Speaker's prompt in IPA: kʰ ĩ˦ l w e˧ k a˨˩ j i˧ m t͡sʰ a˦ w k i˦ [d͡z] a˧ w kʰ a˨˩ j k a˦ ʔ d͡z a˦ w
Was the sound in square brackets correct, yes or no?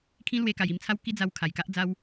yes